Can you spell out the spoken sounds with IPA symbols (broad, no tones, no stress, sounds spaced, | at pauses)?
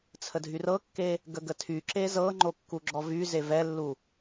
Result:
t͡sʰ ə dʱ y r ɤ kː e | ɡ ə ɡ ə tʰ y ǁ e z ɤ ŋ͡ǃ o kː u ɡ͡ǁ ɔ v y z e v ɛ lː u